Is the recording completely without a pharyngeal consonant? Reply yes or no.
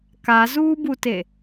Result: yes